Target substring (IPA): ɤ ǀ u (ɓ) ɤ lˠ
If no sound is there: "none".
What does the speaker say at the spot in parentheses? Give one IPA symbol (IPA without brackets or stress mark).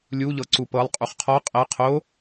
p